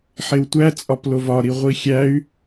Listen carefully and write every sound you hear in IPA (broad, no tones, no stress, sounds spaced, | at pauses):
ħ e w tʷ æ t͡sʼ ɒ p l o v ɒ ɾ i ʁʷ i xʲ æ y̯